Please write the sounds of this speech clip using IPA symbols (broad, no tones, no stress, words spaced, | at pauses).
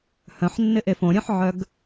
hœ̃ħnːɪʔe fõɾʲœ̃ħʕœɡ